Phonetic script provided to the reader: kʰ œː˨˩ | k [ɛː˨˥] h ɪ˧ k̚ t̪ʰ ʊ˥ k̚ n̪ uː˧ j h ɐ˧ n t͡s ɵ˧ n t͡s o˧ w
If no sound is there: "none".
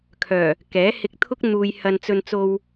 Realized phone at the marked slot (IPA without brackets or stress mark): ɛː˨˥